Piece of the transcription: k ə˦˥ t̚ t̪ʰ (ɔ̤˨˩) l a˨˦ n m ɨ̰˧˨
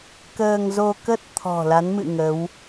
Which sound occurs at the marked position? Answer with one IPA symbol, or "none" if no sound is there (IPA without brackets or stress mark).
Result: ɔ̤˨˩